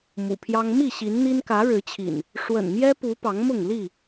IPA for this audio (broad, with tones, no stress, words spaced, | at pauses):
mṵ˨˩pʰjɑ˦ŋ mi˥˨ ɕi˨˦nn̪i˦n kä˨˦ɻɻ̩˨˦t͡ɕʰḭ˨˩n | ʂwə̰˨˩nmjɛ˦pu˨˦ pɑ˨˦ŋmʊ˥˨ŋli˥˨